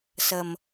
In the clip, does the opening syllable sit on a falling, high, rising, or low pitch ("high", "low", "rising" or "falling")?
low